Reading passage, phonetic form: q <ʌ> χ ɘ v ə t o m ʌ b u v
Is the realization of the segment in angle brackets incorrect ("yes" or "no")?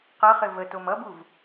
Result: no